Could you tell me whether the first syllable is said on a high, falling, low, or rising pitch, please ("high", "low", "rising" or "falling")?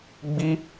high